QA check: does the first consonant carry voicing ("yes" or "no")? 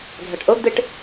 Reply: yes